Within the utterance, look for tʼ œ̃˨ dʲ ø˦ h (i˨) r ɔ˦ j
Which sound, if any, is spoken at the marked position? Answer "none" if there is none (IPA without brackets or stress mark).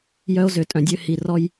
i˨